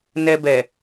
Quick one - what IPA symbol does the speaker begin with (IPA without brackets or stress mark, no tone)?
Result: n